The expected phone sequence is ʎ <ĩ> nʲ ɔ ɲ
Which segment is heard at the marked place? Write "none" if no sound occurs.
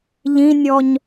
ĩ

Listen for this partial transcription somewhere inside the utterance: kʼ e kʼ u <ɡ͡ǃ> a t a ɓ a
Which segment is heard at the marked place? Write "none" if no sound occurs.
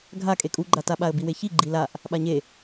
ɡ͡ǃ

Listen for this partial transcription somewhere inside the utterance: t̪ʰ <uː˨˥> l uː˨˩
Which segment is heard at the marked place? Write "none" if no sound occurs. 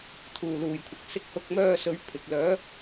uː˨˩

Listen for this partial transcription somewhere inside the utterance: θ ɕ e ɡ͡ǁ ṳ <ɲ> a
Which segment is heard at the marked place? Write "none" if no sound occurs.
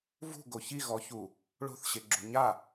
ɲ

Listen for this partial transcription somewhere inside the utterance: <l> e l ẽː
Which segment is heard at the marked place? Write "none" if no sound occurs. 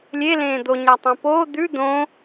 lʲ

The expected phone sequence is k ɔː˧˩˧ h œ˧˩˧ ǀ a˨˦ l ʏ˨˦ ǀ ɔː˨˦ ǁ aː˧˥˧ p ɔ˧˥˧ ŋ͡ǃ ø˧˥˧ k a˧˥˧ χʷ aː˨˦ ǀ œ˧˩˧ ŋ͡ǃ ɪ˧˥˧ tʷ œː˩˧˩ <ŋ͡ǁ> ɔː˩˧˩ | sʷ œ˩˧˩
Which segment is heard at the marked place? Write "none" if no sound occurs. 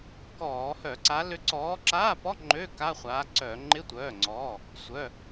ŋ͡ǀ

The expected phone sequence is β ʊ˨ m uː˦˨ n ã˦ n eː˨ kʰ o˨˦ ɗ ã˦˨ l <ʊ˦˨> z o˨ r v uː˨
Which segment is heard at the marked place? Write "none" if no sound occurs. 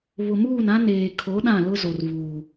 ʊ˦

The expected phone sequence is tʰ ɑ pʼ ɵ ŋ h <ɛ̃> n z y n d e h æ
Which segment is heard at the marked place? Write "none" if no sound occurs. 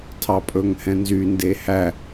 ɛ̃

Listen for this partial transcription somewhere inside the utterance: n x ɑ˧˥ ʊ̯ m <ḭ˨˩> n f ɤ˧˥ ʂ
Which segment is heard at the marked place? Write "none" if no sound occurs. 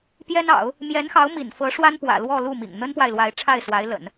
ḭ˨˩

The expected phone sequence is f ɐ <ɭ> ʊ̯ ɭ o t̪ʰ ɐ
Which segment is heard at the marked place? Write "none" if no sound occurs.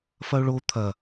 none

